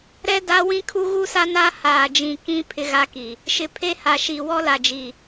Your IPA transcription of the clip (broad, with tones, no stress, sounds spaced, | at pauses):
ɾ ɛ˦ d a˦ w ĩ˦ kʰ u˦ ɣ u˦ s a˦ n a˦ h aː˨ d͡ʒ ĩ˨ k ĩ˦ pʰ ɪ˦ ɣ a˦ k i˨ | ʃ ɪ˨ pʰ e˦ h a˨ ʃ i˨ w ɔ˦ l a˨ d͡ʒ i˨